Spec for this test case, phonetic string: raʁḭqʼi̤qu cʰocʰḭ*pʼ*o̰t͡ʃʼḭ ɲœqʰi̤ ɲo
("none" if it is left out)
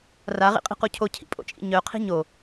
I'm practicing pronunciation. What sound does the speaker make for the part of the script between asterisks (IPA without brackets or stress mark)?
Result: pʼ